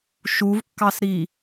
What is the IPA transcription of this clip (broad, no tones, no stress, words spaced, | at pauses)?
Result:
ʃuvkːɑsɾi